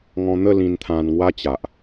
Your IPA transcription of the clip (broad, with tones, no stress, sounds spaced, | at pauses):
ŋ ɔ̃˧ n̪ ə˥˧ l ĩ˧ n t̪ʰ ã˧ n ŋ w a˦ t͡ɕ a˨ ʔ